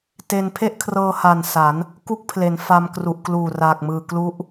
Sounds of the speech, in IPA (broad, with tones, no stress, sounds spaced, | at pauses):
t e˧ n pʰ e˥˩ ʔ kʰ r ɤː˧ h a˨˩ n s a˩˦ n | k u˥˩ k̚ pʰ l e˩˦ n f a˧ m k r u˨˩ ʔ k l uː˨˩ r aː˨˩ k̚ m ɯː˨˩ k l u˦˥ ʔ